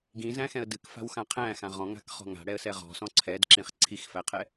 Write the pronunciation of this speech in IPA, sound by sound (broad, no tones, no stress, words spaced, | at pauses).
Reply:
ɡĩzæ̃xɛ̃ə̯ dɨkfa̤wxã qʰæ̃xã ʁɔ̃ŋa̤kχɔ̤ ŋa̤ɽɛə̯sɛ ʁɔ̤sɔ̃ ǀʰɛdǁĩχ ǀʰixfæqʰɛ